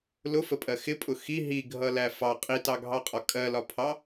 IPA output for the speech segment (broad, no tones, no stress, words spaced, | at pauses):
lʊfəpʼɜ xɪpʼʊ xi ɦiɡʱʌlæ fɑ qʼitɑɡʱɑqʼɒ kʼɜlɒpʰɑ